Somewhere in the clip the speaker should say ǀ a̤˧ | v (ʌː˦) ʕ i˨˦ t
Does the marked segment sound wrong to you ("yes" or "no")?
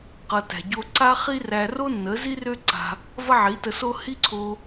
yes